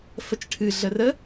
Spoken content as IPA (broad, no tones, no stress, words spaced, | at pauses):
fət͡ʃʈʰɨ ɮərə